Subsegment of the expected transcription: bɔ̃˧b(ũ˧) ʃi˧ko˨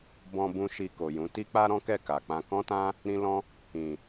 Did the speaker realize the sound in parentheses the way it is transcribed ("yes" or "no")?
yes